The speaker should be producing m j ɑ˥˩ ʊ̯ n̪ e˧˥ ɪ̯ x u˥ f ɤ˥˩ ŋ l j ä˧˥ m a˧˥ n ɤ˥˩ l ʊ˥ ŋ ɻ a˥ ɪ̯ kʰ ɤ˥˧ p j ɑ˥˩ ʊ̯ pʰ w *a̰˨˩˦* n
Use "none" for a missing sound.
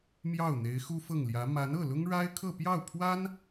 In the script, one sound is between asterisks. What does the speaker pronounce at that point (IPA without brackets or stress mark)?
a˥